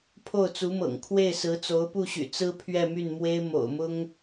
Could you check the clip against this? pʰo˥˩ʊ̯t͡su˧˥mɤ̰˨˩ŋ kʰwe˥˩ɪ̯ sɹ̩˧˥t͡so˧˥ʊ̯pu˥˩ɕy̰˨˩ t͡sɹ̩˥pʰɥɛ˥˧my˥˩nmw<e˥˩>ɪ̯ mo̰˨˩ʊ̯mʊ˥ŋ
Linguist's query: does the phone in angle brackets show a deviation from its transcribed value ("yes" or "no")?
yes